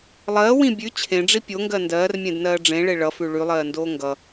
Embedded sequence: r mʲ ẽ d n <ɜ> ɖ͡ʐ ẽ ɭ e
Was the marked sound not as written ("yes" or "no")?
yes